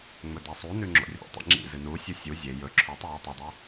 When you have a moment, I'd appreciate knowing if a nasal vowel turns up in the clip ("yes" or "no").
no